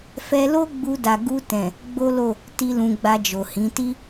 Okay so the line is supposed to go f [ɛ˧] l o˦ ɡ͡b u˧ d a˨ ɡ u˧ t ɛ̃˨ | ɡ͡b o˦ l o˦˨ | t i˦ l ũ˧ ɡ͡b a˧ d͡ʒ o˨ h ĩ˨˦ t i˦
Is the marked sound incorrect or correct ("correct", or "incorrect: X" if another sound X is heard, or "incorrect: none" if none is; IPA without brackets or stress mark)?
correct